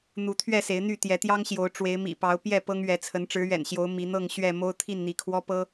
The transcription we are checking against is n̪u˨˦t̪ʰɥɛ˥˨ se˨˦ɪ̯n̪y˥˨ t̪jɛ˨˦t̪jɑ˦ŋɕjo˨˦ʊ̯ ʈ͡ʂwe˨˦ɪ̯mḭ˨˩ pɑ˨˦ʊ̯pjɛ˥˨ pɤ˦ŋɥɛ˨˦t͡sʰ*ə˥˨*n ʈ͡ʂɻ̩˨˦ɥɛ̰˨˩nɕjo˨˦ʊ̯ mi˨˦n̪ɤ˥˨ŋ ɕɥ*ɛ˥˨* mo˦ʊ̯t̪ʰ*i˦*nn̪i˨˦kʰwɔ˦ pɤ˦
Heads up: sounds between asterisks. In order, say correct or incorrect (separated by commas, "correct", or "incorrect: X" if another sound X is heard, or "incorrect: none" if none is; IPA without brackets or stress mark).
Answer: incorrect: ə˨˦, correct, incorrect: i˥˨